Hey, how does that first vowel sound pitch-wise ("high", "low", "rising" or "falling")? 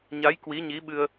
rising